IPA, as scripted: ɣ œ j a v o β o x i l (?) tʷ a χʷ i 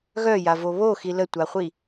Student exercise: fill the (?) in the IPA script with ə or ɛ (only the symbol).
ə